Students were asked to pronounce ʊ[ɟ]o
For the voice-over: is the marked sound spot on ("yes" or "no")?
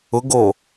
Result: no